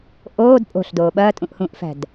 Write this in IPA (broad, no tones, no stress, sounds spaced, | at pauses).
ʔ oː d pʼ o̤ ɬ d oː ɓ ɐː tʼ ũ ʔ h ũː ʔ f æ̤ d